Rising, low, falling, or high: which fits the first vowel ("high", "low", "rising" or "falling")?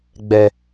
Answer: low